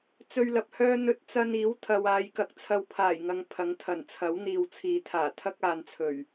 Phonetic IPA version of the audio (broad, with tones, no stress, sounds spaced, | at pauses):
t͡s ɵ˧ ɥ l ɐ˨ p̚ h œː˥ n̪ ɵ˧ t̚ t͡s ɐ˧ n iː˨˥ w t̪ʰ ɐ˨ w aː˨ j k ɐ˧ k̚ t͡sʰ ɐ˧ w pʰ aː˨˩ j ŋ ɐ˨ ŋ pʰ ɐ˨˥ ŋ t̪ʰ ɐ˨˩ n t͡sʰ ɐ˨˥ w n̪ iː˨ w t͡sʰ iː˨ t̪ʰ aː˨˩ t̪ʰ ɐ˥ k̚ aː˨˧ n t͡sʰ ɵ˨˩ ɥ